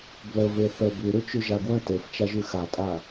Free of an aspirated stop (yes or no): yes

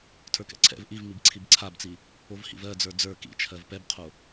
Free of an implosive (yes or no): yes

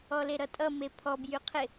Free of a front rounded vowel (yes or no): no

